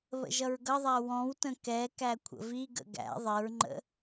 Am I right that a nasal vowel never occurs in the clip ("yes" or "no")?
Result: no